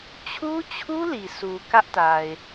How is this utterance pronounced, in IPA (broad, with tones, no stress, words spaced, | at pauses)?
t͡ɕʰu˦t͡ɕʰu˦ li˨sʰu˨ kä˦ʔta˨ɪ̯